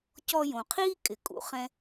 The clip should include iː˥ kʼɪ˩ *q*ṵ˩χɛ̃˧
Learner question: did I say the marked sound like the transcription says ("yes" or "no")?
no